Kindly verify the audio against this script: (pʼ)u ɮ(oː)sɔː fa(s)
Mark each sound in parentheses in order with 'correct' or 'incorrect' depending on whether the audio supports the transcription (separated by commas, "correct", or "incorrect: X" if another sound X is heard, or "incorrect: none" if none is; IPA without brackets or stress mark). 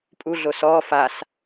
correct, incorrect: o, correct